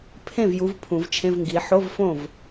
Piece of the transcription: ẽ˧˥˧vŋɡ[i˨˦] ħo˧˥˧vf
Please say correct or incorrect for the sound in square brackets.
correct